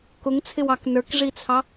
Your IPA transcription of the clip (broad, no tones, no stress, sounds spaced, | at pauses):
k ʊ ŋ t͡sʰ ɪ w ɑ k n ə˞ k ʐ i t͡sʰ ɑ